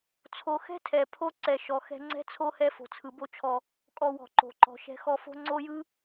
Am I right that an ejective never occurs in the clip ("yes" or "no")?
no